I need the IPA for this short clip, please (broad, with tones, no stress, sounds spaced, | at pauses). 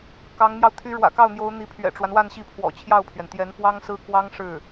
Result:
k ɑ˧˥ ŋ n̪ j ɑ˧ ʊ̯ t̪ʰ y˧˥ ɻ w ä̰˨˩ k ɑ˥˩ ʊ̯ n̪ j o˧˥ ʊ̯ n̪ i˧˥ pʰ ɥ ɛ̰˨˩ ʈ͡ʂ w a˦ n w a˥˧ n ɕ i˥˩ pʰ w ɔ̰˨˩ t͡ɕʰ j ɑ˥˩ ʊ̯ pʰ ɥ ɛ˩ n t̪ j ɛ˧˥ n f w ɑ˥ ŋ s ɹ̩˥ k w ɑ˥ ŋ ʂ ɻ̩˥˩